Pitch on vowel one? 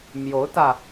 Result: rising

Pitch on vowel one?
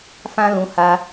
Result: high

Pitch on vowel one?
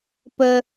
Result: high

